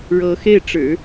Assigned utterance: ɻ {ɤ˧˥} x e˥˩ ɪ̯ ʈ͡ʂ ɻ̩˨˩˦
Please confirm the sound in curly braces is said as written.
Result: yes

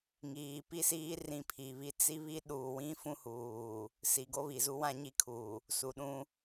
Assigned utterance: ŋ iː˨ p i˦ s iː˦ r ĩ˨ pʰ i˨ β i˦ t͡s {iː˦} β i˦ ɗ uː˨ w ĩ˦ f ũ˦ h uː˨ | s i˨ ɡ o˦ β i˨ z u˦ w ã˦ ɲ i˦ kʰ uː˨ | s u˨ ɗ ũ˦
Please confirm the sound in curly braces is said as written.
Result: no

